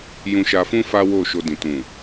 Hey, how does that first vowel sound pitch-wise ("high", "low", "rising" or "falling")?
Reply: low